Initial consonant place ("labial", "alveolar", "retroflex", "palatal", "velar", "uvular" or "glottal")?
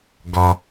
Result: velar